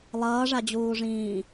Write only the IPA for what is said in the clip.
lˠ ʌː ʐ a d͡ʑ uː ʐ ĩː

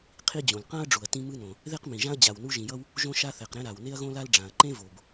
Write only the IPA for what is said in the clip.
qʰ i˥ d͡ʑ õ˩ l q ã˥ ɐ̯ ɖ͡ʐ u˩ ɐ̯ t ĩ˥ m ɯ˥ n õ˩ | ð e˥ q m ĩ˩ ʒ ã˥ ɐ̯ d͡ʑ a˩ w n u˥ ʒ ĩ˩ j ʌ˥ w | ʒ õ˥ ʃ a˥ θ ɛ˩ q ɾ ɛ̃˥ ɾ a˩ w n e˥ ɐ̯ ɣ õ˥ l a˥ l ɖ͡ʐ ã˩ ɐ̯ ǃ ẽ˥ v o˩ b

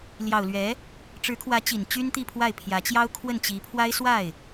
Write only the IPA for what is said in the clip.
l j ɑ˨˩ ʊ̯ l ɥ ɛ˧˥ | ʈ͡ʂ ɻ̩˧˥ kʰ w ä˧˥ t͡ɕ i˨˩ n t͡ɕ y˥ n t̪ i˥˧ pʰ w a˥˩ ɪ̯ pʰ j ä˧˥ t͡ɕ j ɑ˥ ʊ̯ kʰ w ə˥˩ n t͡ɕ i˧˥ pʰ w a˥ ɪ̯ s w a˥˩ ɪ̯

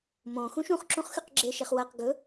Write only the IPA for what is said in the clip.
m õ x ũ ʃ ũ χ ǁ ũ χ x ʉ q ɡ͡ǁ e ʃ e χ w ɐ q ɡ ɵ

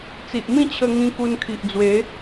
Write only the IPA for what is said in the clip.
t͡s i˨ ʔ m ĩ˥˧ t͡ɕʰ ə˧ ŋ ĩ˧ k u˧ n kʰ i˨ ʔ d͡z w e˨˦

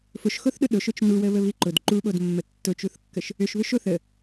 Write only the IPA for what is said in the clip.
f ʊ ʃ x o θ ɗ ʊ ɗ ʊ ʃ ʊ t͡ʃ n u w ə β ə β i ǃ ʊ d ǃ u ɓ o d mː ə tː ʊ t͡ʃ u θ kː ə ʃ | ʏ ʃ β ʏ ʃ o θ ə

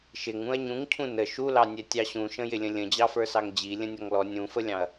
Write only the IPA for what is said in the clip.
ʃ ɪ ŋ ũ ɐ̯ ɲ ũ ŋ cʰ ũ n ə ʃ u l ɑ nʲ ɛ tʲ ɑ ɕ ũ ʃ ə̃ j ɪ lʲ ə̃ lʲ ə̃ d͡ʑ ɑ f ə˞ s ɑ ŋ d͡ʑ i lʲ ə̃ nʲ ɔ ŋ l ɔ nʲ ũ f ə lʲ ɑ̃ ɐ̯

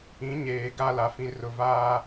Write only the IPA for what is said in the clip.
ĩ˨˦ ɲ eː˨ ɡ a˦ l a˨ f ĩ˨ r ʊ˨ v aː˦

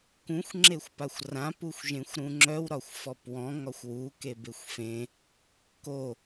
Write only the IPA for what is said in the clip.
k ũ xʷ ŋ͡ǁ e xʷ p a xʷ r ã p u xʷ ʒ ẽ xʷ ɾ ũ ŋ͡ǁ œ w ɾ ɒ xʷ f ɔ p w ɔ̃ ŋ ɒ xʷ w u k e b e xʷ f ẽ | k o

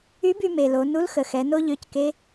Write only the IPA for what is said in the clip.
y˧˥ b y˧ m e˩ l o˩˧ n u˧˥ l x ə˩ x ɛ˩˧ n o˥ ʎ ø˧˥ c k e˧˥

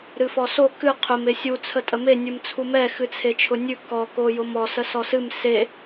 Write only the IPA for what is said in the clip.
ɾ ɨ f ɔ s o k ɨ qʰ ʊ m e sʲ u t͡sʰ ə tʼ ə m e nʲ ɨ m t͡sʰ u m ɛ x ɨ t͡sʰ e t͡ʃʰ ʊ nʲ ʉ k ɔ k o j ʊ m ɔ s ə s ɔ s ɨ m s e

